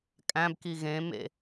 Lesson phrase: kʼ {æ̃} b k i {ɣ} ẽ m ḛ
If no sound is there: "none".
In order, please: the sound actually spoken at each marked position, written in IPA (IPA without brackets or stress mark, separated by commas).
æ̃, ɣ